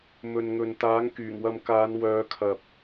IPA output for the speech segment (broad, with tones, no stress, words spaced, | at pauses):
mɵ˨nŋɵ˨n t̪aː˨˥ŋkyː˨˩ŋwɐ˧m kaː˨˧nwœː˨˧ kʰɐ˨p̚